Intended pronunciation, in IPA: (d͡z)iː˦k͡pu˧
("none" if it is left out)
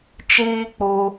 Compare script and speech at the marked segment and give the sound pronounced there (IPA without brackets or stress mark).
t͡ʃ